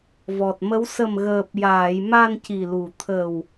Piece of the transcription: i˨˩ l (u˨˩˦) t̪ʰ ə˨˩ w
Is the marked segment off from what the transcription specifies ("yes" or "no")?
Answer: yes